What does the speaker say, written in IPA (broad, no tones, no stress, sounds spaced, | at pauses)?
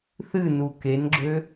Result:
θ ɨ n u k e n ɡ͡ǁ ø